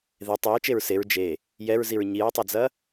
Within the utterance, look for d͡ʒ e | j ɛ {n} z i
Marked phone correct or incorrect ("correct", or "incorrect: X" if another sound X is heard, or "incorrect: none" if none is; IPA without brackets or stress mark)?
incorrect: ɹ